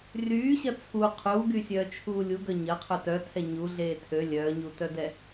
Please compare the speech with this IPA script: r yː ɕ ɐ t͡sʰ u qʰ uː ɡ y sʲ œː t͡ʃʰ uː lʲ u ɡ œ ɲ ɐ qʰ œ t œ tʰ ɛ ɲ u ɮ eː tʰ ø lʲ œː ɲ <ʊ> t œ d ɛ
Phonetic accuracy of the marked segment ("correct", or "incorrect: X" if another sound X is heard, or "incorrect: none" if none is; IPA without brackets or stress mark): incorrect: u